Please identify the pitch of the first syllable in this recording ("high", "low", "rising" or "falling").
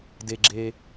low